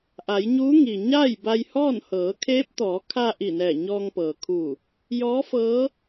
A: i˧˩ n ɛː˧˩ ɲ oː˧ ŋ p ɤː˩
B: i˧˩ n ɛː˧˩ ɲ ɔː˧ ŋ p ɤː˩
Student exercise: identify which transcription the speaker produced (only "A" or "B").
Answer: B